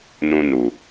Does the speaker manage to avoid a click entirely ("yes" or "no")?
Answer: yes